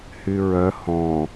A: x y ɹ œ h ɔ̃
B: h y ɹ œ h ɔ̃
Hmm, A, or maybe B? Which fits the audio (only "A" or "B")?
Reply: B